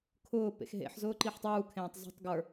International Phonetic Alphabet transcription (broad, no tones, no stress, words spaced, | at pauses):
kʰʊː pḛxɦḛħzʊː ǃiħtˤuːkʰẽːtˤ zṳtˤ ɡə˞